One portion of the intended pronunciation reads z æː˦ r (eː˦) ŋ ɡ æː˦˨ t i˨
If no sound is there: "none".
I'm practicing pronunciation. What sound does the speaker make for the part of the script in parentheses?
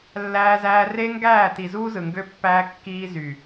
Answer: e˦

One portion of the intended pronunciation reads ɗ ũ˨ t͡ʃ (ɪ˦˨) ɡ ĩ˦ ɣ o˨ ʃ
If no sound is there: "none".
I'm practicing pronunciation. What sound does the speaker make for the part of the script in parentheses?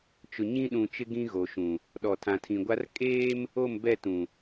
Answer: ɪ˦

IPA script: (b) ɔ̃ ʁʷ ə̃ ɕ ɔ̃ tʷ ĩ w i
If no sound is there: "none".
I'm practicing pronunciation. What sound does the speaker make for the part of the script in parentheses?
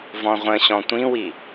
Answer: v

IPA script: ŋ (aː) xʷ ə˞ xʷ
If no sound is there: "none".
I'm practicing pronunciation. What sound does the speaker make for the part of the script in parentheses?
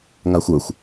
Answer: a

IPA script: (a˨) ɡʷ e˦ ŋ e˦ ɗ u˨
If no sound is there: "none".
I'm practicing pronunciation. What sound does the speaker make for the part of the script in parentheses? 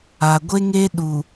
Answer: a˨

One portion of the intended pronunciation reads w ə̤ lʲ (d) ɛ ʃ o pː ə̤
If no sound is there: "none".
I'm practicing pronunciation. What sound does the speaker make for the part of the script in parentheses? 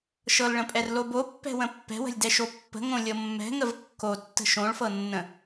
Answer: d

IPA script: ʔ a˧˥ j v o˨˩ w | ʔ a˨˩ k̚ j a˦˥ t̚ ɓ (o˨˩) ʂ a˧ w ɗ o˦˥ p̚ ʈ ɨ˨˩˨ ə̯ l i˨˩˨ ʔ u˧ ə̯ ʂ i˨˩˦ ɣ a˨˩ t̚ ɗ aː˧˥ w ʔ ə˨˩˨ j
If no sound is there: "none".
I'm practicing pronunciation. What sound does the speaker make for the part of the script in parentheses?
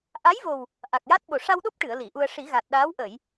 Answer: o˨˩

